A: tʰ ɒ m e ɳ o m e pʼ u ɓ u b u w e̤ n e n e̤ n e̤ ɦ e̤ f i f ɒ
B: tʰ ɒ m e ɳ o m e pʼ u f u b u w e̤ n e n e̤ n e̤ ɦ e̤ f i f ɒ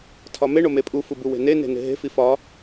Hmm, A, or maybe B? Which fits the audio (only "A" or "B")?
B